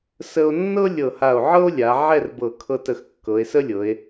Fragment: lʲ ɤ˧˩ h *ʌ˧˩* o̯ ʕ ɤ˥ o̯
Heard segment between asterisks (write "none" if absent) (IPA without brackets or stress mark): a˧˩